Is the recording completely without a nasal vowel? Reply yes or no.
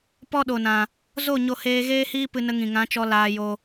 no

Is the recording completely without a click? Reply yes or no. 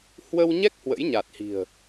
yes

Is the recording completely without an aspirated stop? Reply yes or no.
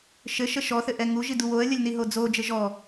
yes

